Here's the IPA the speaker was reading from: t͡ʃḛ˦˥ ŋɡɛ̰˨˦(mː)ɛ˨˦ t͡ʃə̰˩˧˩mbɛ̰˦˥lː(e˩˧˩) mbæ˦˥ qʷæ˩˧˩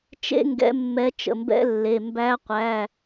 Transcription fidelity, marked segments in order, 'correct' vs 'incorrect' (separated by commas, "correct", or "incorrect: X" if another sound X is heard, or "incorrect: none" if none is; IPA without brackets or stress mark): correct, correct